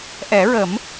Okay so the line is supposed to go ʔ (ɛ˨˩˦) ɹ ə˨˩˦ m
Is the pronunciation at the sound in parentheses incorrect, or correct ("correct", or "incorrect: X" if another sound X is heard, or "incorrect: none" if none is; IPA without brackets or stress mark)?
correct